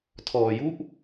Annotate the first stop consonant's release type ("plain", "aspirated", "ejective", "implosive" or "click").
aspirated